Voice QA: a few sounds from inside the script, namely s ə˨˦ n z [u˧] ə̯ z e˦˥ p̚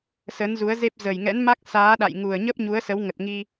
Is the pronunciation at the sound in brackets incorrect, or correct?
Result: incorrect